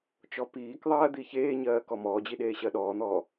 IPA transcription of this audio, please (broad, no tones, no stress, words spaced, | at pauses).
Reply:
t͡ʃɔpiːk ðˤɜːd̪içeːɲɜː kɔmɔːd͡ʑiɗeː ɕɜɗɔːn̪ɔː